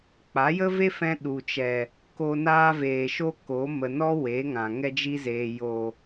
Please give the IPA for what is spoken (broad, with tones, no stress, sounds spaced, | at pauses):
k͡p a˨˦ j ə˦ v e˦ f ɛ̃˧ ɗ u˨ t͡ʃ ɛ˨ | k o˧ n aː˧ v eː˨ ʃ o˧ k o˨˦ m ə˨ n ɔ˧ w e˨˦ ŋ ã˨ ŋ ɛ˧ d͡ʒ i˧ z eː˨ j o˨